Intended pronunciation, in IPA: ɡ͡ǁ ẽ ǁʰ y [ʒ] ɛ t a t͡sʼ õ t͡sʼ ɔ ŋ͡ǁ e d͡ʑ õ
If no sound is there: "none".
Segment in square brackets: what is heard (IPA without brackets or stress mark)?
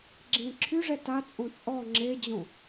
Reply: ʐ